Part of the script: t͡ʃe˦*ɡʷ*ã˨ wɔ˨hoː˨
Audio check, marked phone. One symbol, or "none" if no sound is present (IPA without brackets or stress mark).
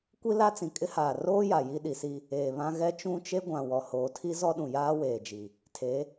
ɡʷ